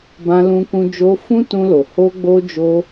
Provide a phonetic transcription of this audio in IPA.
bã˧lũ˧kũ˧ d͡ʒo˧ fũ˦tũ˧lo˨ ho˧ɡ͡bo˧ d͡ʒo˧

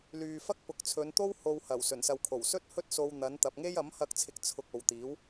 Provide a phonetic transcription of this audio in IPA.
lyː˨fɐ˥k̚ pʊ˨˥k̚t͡sʰɵ˨˧nt̪o˥w ho˨whɐ˨˩w sɵ˨˩nsɐ˨wkʰo˨˩w sɵ˥t̚hɵ˥t̚so˧w n̪ɐ˨˧n t̪ɐ˨p̚ŋe˥j ɐ˨˥mhɐ˧k̚t͡sʰɪ˨k̚ t͡sʰʊ˨k̚ o˨wt̪iː˨˥w

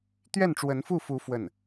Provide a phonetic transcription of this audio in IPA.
t̪ɥɛ˥˩nʈ͡ʂwə˧˥nfu˥˩fu˧˥ fwə˥˩n

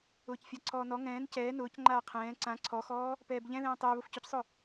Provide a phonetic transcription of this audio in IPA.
ʊːcfʲaǀʰɔːnɔ ŋɛ̃ːn cɛː nʊːc ŋ͡ǃaːqʰɛ̃ː ǀã ǀʰɔxɔː | pɛːbʎɛ̃ðɛ̃ː tˤʊː βʊfcʊcsˤʊ

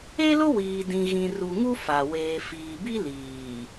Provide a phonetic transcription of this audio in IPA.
e˦lʊ˦wiː˨dĩ˨ ɣĩ˨ru˨ŋu˦ fa˨ weː˨fiː˨bi˦ liː˨

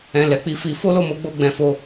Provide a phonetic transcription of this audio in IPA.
ɛ̃˨ lɛ˨˦k͡pi˧fi˧ fo˦lo˦˨mo˨˦ɡ͡bo˧ ɡ͡bɛ̃˧fo˦

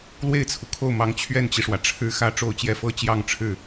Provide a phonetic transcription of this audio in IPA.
lwe˥˩ɪ̯t͡sʰu˩kʰo˥˩ʊ̯mɑ˧˥ŋ t͡ɕʰɥɛ˥˩nt͡ɕi˩ʂwä˩ ʈ͡ʂʰɻ̩˥xä˥˧ ʈ͡ʂo˥˧ʊ̯t͡ɕjɛ˥˩ fɤ˥t͡ɕjɑ˥˧ŋʈ͡ʂʰɻ̩˥˩

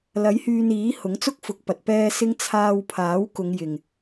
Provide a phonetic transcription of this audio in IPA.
lɐ˨˥jhyː˧niː˨˥hʊ˨˥ŋ t͡sʊ˥k̚fʊ˨˥k̚pɐ˨t̚ pɛː˨sɪ˨˧ŋ t͡sʰaː˧wpʰaː˨˥wkʊ˨˧ŋjɪ˨ŋ

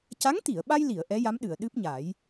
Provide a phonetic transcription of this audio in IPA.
ca˧˥ŋt̪i˨˩˨ə̯ɓa˧jli˨˩˨ə̯ ʔɛ˧˥ja˧˥mɗɨ˨˩˨ə̯ ɗɨ˦˥p̚ɲa˨˩˦j

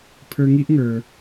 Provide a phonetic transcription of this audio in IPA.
pʰə˞˧ ŋi˦ʔŋə˞˧

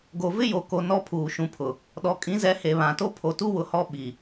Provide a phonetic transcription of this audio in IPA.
ɡo˨vɪ˦jo˨ko˨ nɔ˦pʰuː˨ ʃũ˨pʰʊ˨ | ɗɔ˨kʼĩ˨˦zɛ˨˦he˨ βã˨to˦ pʰo˨tu˦wʊ˨hɔ˦ ɓi˨

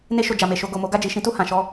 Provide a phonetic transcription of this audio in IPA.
ne˧ʃo˨ d͡ʒa˨me˨ʃo˧ ɡo˨mo˨˦ ɡa˦˨d͡ʒi˨ʃĩ˨˦tu˦˨ hã˨ʃɔ˧

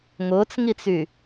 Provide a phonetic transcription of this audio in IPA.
ŋʊːt͡sŋit͡sy

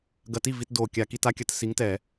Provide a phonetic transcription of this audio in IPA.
ɡɐ˧ti˥˨vi˧t do˧˩ kʲa˧˩˧ki˧ta˦˥kʲɐ˧˩˧t si˨˥ŋtɛ˧˩˧

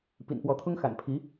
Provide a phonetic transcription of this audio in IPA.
pḭ˨˩npwɔ˧˥t̪ʰʊ˥ŋ xa̰˨˩npʰi˧˥

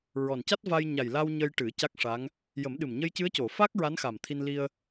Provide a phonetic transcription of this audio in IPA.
ɹɔ˨˩nca˦˥t̚va˧j ɲa˨˩jla˧w ɲə˧jʈɨ˨˩˦ ca˦˥k̚ʂa˧˥ŋ | jə˨˩˦mɗɨ˨˩m ɲə˧jcɨ˧˥ə̯co˨˩˨ fa˦˥k̚ ɹa˧˥nxa˨˩mt̪ʰi˧n li˧ə̯

